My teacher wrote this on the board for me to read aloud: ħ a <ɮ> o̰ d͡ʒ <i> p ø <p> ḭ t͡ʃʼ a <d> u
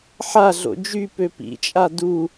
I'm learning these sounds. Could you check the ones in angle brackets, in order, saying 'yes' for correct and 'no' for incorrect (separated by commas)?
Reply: yes, no, yes, yes